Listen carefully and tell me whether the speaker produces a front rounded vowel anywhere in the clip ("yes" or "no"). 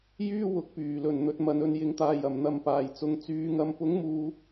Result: yes